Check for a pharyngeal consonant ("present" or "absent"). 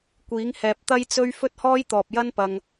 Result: absent